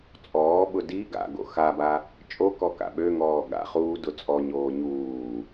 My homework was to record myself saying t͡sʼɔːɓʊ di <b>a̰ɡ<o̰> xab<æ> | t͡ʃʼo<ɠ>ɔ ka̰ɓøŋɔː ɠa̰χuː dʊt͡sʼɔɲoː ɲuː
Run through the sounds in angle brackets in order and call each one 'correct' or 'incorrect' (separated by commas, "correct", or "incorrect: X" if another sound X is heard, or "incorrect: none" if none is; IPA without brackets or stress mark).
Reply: incorrect: ɡ, correct, incorrect: a, incorrect: k